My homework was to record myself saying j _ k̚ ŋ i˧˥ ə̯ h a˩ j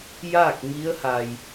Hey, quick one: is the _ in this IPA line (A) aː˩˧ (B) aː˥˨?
B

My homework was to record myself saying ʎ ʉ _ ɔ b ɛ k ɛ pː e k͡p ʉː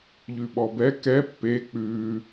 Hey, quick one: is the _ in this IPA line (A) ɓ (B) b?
A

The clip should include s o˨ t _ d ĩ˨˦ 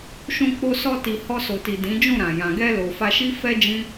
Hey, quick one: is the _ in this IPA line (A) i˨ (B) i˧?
A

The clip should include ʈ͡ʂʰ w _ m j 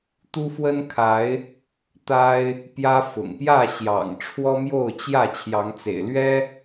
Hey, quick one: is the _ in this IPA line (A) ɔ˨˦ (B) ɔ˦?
B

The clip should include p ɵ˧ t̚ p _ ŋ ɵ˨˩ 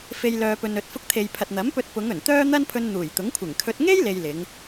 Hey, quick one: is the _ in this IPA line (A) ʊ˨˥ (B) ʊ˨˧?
B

